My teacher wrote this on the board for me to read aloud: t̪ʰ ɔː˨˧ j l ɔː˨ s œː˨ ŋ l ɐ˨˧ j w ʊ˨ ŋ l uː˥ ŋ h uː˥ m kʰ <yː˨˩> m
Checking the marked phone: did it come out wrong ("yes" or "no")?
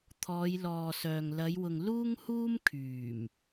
no